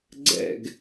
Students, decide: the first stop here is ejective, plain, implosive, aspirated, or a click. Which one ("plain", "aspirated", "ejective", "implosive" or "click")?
click